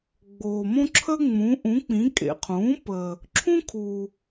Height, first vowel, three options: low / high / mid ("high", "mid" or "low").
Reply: mid